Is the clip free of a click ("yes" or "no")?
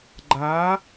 no